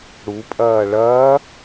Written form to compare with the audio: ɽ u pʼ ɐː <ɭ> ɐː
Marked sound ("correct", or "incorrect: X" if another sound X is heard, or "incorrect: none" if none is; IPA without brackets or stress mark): correct